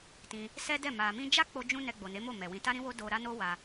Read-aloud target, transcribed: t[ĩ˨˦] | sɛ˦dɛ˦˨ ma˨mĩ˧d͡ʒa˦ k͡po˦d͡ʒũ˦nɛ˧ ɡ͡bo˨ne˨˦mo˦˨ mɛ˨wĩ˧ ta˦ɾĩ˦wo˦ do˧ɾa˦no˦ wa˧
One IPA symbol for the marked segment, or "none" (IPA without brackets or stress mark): ĩ˧